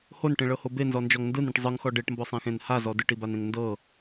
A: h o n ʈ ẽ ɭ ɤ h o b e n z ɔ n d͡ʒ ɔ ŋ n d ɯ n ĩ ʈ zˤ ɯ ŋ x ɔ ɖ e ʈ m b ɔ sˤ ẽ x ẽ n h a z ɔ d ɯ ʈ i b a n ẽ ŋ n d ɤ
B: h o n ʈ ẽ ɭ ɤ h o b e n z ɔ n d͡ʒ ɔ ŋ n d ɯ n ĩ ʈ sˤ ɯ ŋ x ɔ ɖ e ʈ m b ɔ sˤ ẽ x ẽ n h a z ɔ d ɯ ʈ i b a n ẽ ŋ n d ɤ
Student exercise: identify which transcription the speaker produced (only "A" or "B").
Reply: A